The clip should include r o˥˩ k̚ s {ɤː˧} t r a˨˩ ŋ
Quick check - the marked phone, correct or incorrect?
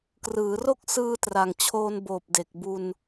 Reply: incorrect